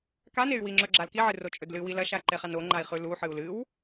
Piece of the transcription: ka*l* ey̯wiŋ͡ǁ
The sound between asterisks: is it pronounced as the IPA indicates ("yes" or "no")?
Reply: no